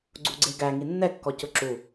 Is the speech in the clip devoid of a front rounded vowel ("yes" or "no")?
yes